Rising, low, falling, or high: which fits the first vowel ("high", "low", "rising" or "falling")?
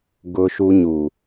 low